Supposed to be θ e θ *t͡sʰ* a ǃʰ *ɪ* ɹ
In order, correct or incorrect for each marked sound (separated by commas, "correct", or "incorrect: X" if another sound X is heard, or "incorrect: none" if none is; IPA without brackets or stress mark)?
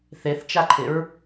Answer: incorrect: t͡ʃ, correct